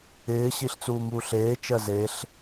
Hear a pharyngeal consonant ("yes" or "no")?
no